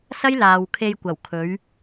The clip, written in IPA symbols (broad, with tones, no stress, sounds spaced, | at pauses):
s ɐ˥ j l aː˨ w kʰ e˧ j kʷ ɐ˨˩ w kʰ ɵ˨˧ ɥ